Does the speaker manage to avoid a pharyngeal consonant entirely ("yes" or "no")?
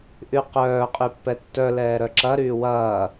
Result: yes